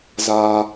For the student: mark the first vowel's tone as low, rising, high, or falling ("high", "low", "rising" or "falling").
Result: low